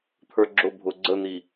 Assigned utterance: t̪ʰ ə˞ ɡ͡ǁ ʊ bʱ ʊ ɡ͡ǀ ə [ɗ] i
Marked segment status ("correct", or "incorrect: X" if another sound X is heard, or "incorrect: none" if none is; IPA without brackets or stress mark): incorrect: n̪